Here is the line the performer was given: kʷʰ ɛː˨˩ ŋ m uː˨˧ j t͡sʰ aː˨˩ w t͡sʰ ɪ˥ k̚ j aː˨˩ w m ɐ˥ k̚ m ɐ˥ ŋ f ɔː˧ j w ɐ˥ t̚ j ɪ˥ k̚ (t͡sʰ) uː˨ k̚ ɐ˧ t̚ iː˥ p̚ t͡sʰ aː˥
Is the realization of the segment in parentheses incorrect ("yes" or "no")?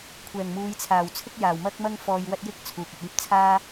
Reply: no